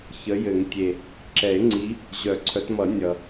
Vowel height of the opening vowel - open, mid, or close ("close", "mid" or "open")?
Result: mid